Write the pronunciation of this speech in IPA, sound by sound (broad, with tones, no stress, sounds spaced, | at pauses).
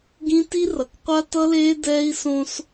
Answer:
ɡ ĩ˦ t i˦ r ʌ˨ k qʷ a˦ t ʌ˦ l eː˦ d ɛː˦ i̯ s õ˦ s